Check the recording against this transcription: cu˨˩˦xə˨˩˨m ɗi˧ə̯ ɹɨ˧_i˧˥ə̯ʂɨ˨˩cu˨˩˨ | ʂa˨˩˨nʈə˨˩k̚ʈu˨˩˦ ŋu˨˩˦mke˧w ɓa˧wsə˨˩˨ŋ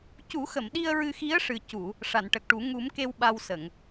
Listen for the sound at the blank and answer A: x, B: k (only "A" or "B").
A